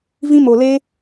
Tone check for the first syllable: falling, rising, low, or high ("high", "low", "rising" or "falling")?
high